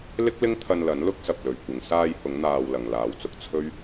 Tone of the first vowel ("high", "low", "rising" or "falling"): high